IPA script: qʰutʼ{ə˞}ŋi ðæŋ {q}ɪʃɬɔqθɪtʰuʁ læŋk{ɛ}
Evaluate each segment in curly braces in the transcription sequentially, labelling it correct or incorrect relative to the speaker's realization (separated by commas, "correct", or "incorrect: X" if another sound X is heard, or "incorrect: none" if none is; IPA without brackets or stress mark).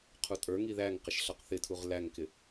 correct, correct, incorrect: ɪ